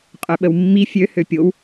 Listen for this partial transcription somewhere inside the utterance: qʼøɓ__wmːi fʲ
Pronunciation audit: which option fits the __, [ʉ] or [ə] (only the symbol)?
ə